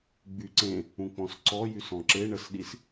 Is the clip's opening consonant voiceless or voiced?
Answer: voiced